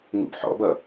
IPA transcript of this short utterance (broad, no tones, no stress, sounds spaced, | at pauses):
ŋ ṵ b ħ ɔ̰ b ʌ